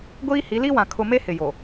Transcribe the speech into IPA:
ɡʷ iː˦ h i˨˦ l i˦ w ã˨ kʰ ʊ˨ m e˦ h ɪ˨ j o˨

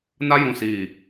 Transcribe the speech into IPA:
n a˦ j ũ˨ s iː˨

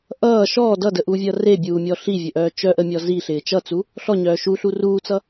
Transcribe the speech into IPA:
ʔ ʌː ʃ ɔː d ʌ d ə ʔ uː vʲ ʌː r e bʲ uː mʲ ɔ ɬ i vʲ ɵ ʔ œː t͡ʃ œ ʔ ə mʲ ɔ z i ɬ ɪː t͡ʃ ʌ t͡s u | ɬ ɔ ɲ œː ʃ u ɬ u r uː t͡s ʌ

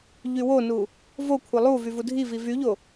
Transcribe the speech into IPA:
ʎ y w o n u | v o kʷʰ ɛ lˠ u v y v u dʱ i v i v y ʎ o

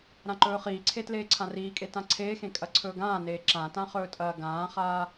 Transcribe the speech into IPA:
ɾ ã ǃ ɵː χ iː ǀʰ e t l eː ǀʰ ã r iː kʼ e t ã ǀʰ eː x ẽ kʼ ɐ ǀʰ ɵː ɡ ãː n eː ǁ ã t ã χ ɵː tʼ ɐː ɡ ãː χ aː

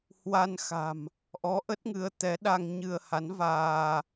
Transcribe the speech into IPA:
h w a˧ n x a̤˨˩ m | ʔ ɔ˨˦ ʔ ə˦˥ t̚ ŋ ɨ˨˦ ə̯ t̪ ɛ˨˦ ɗ a˧ ŋ ɲ ɨ˧ ə̯ h a˨˦ n v aː˧

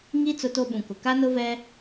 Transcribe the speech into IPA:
ŋ i˦ t͡s ʊ˦ t o˦ ɓ ũ˨ k ʊ˨ k a˦ n ʊ˦ v ɛ˦

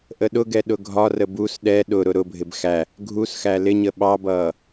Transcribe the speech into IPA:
ʔ ə ɗ ʊ ɡ ɛ ɗ ʊ ɡʱ ɒ r ə b u s ɗ ɛ ɗ ʊ ɾ ʊ ɾ ʊ bʱ ɪ b x æ | ɡʱ u s x æ l ɪ ɲ ə ɓ ɑ b ʌː

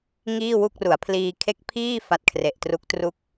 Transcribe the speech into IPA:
ŋ iː˥˩ w u˥˩ k̚ r u˩˦ a̯ pʰ l iː˧ kʰ e˦˥ k̚ pʰ iː˥˩ f a˦˥ t̚ kʰ r e˨˩ ʔ t r u˦˥ k̚ t r u˥˩ k̚

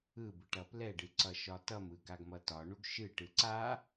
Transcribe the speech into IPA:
ɯ b ɯ ʈ ʌ p l ɛ ɖ ɨ ǀ ʌ ʃ ɒ t ʌ m ɯ ɡ a ɡ m ʌ t ɒ ɳ u ɡ ʃ ɨ ʈ ɯ ǀ a

